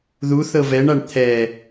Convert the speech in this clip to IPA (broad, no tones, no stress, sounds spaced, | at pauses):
ð u θ ɤ v ɛ ɳ a ɳ t̪ʰ ɛ